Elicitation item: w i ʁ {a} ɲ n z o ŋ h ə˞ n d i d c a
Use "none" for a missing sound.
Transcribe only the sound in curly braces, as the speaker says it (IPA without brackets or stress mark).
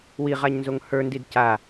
a